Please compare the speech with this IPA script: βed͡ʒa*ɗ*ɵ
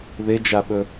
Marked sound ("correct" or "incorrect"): incorrect